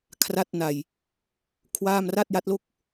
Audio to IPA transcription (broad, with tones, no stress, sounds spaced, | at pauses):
kʰ r a˥˩ t̚ n a˧ j | kʰ w aː˥˩ m r a˥˩ t̚ j a˦˥ t̚ l o˥˩ k̚